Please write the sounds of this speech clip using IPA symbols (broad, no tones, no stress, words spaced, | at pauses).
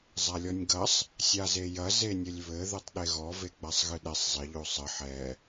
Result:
zˤalʲɔnʲɡɐsˤ | sʲazejɐ zenʲɘlʲβɘ ðɘtˤɗeɣɔ veɡ͡basˤɣɨɗɛsˤ zˤɘ ʎosˤɘ ħɛ